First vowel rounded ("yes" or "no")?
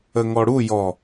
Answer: no